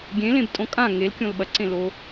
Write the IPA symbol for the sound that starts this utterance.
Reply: ɡʲ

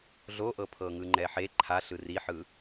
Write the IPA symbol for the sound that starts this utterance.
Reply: ɮ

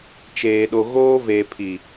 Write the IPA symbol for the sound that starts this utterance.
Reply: t͡ʃ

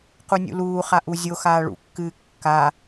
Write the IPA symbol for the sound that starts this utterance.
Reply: q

